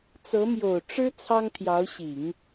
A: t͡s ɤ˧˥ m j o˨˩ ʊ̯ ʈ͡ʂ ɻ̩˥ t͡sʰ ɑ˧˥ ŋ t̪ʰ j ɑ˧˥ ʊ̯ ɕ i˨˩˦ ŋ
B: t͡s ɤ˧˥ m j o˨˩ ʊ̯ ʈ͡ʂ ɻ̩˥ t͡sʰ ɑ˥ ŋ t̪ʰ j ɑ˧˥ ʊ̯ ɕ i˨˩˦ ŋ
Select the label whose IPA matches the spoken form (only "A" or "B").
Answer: B